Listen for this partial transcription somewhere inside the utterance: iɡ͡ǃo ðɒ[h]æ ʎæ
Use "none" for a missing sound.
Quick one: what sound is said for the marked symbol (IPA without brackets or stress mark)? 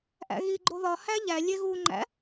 h